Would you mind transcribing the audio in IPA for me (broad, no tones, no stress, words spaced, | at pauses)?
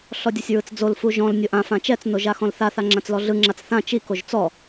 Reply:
ɬɔdʲosʲɹɯt͡sd͡zol fuʒɔ̃l nʲoʔã fãt͡ʃɛt͡s noʒaxɔ̃lθa θaŋ͡ǁãt͡slɔɮɯ ŋ͡ǁat͡sθã t͡ʃi koʒt͡sɔ